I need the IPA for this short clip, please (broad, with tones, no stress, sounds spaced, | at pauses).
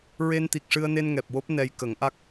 ɹ e˧ n t̪ i˨˩ k̚ ʂ ɨ˧ ə̯ n e˧ n ŋ ɛ˨˩ p̚ w o˦˥ p̚ n ɛ˧ j k ə˨˩˦ ŋ ʔ a˦˥ k̚